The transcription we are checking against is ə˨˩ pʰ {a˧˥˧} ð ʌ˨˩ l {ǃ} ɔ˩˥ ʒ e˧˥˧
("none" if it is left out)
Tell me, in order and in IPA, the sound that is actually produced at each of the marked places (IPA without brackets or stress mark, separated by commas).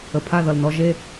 a˧˥˧, n